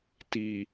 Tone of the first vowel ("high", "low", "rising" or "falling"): low